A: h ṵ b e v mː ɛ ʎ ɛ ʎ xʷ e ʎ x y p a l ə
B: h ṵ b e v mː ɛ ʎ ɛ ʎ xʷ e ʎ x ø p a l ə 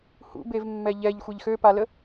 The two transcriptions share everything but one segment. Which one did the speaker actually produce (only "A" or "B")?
B